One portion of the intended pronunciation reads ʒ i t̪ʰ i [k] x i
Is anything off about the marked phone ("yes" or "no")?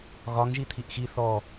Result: yes